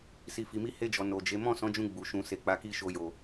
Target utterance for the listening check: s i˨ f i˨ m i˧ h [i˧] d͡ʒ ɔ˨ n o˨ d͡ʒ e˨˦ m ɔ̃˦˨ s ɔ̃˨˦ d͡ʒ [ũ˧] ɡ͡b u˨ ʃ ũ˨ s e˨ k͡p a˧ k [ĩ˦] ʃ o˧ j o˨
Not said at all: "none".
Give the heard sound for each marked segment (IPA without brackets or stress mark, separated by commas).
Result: e˧, ũ˧, i˦